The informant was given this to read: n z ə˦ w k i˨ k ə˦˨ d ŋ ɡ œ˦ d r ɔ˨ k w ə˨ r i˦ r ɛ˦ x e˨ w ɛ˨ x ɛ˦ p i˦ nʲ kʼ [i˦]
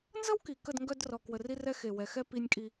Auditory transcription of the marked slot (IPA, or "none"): i˦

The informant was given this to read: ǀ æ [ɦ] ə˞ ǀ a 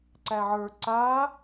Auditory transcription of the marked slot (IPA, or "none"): ʕ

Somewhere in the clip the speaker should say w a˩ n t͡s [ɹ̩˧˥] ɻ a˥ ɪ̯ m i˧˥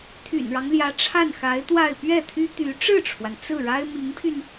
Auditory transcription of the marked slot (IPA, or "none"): ɹ̩˥˩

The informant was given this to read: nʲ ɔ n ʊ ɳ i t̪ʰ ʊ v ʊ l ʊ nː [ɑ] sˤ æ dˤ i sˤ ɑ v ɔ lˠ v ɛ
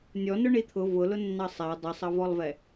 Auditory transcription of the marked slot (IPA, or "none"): ɑ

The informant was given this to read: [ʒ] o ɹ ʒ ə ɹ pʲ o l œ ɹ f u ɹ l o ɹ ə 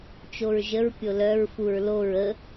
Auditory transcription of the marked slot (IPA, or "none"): t͡ʃ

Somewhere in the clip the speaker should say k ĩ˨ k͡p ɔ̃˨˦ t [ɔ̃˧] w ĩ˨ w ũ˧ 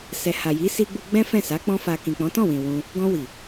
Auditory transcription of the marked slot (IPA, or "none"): ɔ̃˦˨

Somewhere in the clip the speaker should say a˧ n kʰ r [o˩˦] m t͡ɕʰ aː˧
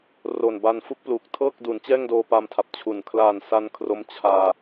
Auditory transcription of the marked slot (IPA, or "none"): o˦˥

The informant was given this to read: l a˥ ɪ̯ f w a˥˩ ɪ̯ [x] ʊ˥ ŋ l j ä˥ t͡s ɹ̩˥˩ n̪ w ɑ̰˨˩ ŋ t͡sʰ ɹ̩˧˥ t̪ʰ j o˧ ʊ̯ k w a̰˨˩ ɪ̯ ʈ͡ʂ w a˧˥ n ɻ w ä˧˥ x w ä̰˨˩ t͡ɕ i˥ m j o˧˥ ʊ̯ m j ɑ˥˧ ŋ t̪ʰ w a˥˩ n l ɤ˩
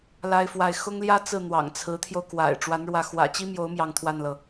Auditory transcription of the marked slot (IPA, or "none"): x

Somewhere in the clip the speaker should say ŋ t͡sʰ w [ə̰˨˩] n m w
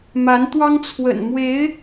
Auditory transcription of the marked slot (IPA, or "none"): ə̰˨˩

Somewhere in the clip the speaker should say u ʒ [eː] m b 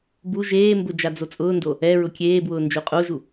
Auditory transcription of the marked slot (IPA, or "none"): eː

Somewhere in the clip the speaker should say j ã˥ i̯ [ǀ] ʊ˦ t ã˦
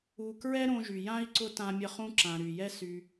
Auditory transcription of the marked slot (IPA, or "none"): ǀ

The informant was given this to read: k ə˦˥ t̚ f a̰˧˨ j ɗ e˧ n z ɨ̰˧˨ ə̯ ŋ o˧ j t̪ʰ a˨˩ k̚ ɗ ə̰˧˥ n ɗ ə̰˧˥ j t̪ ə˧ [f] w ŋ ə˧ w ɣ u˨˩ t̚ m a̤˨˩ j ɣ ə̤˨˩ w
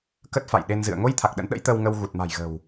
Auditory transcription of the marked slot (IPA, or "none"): none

